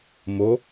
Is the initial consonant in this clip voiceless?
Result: no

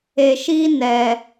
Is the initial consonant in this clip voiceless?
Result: yes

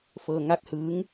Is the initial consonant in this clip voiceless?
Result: yes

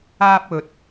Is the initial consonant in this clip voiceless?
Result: yes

